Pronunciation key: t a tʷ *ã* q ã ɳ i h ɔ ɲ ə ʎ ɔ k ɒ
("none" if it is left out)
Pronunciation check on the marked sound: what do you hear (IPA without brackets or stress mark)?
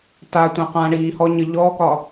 ã